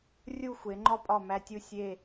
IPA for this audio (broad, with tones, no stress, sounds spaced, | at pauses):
rʲ u˥˧ xʷ e˩˧ ŋ͡ǃ ɒ˥ pʼ ɒ˧˩ m æ˧ tʲ u˧˩ sʲ e˥˧